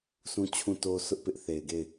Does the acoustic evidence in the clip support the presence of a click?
no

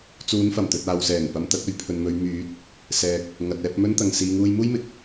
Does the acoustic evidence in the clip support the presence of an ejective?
no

